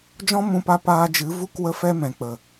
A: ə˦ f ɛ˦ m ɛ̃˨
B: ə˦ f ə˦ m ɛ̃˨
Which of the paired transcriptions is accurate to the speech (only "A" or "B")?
A